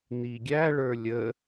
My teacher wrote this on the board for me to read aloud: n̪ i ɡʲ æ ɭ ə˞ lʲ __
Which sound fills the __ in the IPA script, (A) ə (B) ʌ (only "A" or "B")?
A